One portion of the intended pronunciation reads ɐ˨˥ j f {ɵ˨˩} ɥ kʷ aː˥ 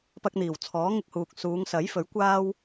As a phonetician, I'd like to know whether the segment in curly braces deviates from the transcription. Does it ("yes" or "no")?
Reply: yes